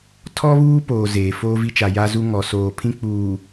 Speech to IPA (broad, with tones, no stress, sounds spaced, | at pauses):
tʰ ɔ˦ β uː˦ p oː˨ z eː˨ f oː˦ v i˦ t͡ʃ a˨ j a˦ z u˦ ŋ ɔ˨ s oː˨ pʰ ĩ˦ k͡p uː˨